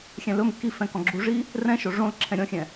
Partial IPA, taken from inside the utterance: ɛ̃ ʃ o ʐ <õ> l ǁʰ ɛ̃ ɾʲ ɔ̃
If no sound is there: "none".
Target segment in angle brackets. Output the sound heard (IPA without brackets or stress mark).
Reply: õ